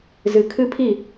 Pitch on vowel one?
low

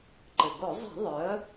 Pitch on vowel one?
low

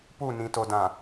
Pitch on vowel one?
falling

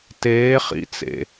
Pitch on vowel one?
rising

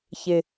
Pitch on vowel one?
low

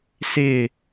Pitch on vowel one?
falling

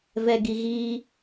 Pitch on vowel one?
low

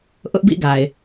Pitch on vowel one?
high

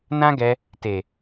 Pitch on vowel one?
high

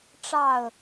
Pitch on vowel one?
falling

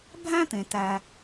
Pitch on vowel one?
high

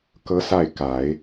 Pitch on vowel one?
rising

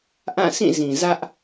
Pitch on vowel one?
falling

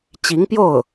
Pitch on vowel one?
rising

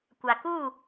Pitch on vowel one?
low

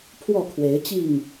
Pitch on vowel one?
falling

